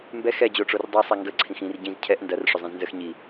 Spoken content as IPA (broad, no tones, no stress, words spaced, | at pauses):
mbɛ xɛd͡ʑoʈ͡ʂor dˤisˤɛ ŋɡə ǀʰĩxĩr ɟĩz cʰɛʔ ndɐr ʂʏzˤĩznzəx ɲi